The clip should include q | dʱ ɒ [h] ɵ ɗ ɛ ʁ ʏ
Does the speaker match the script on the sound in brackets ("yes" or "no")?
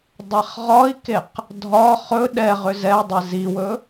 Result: no